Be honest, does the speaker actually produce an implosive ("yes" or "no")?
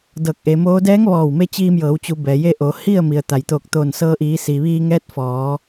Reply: no